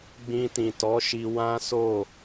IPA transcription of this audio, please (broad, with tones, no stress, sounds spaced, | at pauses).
ɡ͡b ĩ˧ t ĩ˨ t ɔ˨˦ ʃ i˧ w ã˦ s o˦˨